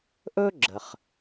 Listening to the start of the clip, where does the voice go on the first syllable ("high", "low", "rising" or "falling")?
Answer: high